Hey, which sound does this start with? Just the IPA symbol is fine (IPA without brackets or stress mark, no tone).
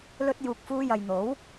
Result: l